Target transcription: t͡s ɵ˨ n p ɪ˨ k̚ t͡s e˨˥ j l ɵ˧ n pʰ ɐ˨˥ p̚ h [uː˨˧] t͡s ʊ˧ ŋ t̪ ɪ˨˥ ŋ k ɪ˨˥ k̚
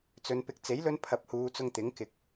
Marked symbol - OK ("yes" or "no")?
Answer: yes